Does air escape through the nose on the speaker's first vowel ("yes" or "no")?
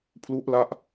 no